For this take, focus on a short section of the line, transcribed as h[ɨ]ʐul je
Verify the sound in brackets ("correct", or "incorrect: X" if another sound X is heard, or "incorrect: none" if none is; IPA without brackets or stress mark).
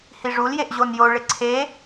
incorrect: i